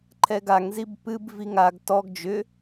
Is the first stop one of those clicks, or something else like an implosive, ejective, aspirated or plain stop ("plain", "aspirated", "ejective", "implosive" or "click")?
click